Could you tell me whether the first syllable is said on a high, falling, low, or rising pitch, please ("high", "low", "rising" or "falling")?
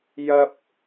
high